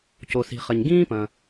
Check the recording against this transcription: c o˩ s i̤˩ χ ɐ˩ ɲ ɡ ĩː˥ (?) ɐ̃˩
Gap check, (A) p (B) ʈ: A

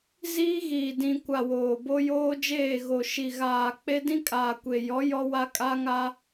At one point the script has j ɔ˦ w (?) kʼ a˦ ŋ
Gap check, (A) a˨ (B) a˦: B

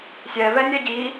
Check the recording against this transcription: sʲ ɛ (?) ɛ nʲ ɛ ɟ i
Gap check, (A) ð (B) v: B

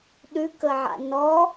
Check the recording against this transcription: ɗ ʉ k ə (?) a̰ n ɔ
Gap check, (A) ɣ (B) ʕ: B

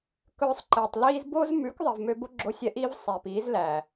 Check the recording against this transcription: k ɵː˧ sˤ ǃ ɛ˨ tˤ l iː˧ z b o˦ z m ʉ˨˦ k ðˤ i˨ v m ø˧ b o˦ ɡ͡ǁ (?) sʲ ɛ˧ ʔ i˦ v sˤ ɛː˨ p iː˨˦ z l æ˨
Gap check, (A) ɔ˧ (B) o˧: B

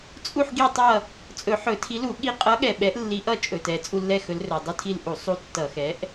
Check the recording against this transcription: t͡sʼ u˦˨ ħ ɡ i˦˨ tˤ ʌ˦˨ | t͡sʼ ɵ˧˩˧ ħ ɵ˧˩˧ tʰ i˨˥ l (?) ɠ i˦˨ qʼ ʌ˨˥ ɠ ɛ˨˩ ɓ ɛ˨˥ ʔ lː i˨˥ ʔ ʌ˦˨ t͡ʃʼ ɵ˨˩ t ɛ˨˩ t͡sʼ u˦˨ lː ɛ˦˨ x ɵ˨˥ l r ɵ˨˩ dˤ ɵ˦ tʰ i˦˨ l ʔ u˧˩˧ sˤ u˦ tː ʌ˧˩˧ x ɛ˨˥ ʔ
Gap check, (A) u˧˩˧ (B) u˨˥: A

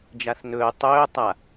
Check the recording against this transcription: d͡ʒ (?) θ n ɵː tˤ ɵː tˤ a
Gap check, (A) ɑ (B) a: B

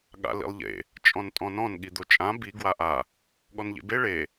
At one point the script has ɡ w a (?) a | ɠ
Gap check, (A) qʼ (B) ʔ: B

